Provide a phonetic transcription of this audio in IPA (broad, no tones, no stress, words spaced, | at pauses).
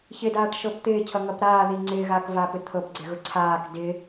çɪdaːʈʃɤp t̪ɪːcʰʌŋʌp ɾaːði ŋ͡ǀɪːɣaːkvaːpɪ t̪ʰɤpɡ͡ǀɪɣʊ ǀʰaːk dɪ